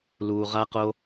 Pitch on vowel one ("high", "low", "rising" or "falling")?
low